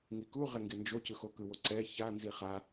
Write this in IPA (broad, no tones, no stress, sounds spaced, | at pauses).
ŋ i k u ʁ ɛ ŋ ɡ e n d͡ʒ o c ɯ x o k ɯ w o ǀ ɛ ç a n z i χ a